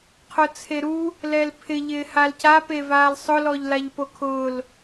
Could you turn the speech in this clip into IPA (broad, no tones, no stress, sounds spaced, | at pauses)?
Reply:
qʰ ʊ t͡sʰ e ɾ u | l ɛ l pʰ ɪ ʎ ɪː h a l c a p e v aː l sˤ ʊ l ɔ ʎ l a ʎ p o kʰ ʊː l